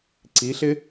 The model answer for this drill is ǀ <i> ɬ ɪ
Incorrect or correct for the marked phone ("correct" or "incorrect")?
correct